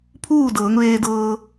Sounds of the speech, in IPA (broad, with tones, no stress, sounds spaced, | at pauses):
pʰ uː˥˨ d ɤː˩˧ ŋ ʋ eː˧ d ɤː˧